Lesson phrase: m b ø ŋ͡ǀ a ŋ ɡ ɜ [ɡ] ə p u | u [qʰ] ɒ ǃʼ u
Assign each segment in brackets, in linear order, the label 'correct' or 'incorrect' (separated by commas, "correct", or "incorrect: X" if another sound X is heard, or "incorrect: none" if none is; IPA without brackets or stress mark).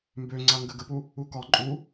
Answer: correct, incorrect: k